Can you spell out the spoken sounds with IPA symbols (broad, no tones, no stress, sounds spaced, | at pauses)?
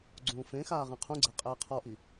ɡ͡ǀ ũː f ẽ x aː ʁ ẽ qʰ ũ ɡ͡ǀ ɛ qʼ ɛː qʰ ɔ ʔ i